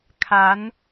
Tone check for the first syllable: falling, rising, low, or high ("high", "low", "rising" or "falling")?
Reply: rising